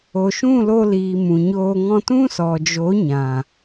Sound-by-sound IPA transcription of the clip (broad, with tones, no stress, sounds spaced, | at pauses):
o˨ ʃ ũ˦˨ l o˧ l iː˨ m ũ˨ ɲ oː˧ ŋ ɔ̃˧ t ũ˦ s ɔ˨ d͡ʒ o˨˦ ɲ ã˨